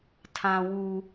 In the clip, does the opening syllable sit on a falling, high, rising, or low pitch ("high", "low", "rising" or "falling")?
high